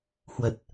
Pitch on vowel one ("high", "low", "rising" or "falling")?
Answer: low